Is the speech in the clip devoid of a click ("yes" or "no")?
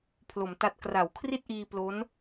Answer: yes